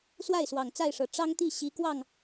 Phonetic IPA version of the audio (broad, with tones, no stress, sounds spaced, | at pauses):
s w a˥˩ ɪ̯ s w ɑ˨˩ ŋ t͡s a˥˩ ɪ̯ ʂ ɤ˨˩ ʈ͡ʂ ɑ˥ ŋ t̪ i˥˩ ɕ i˧˥ k w ɑ˥˩ ŋ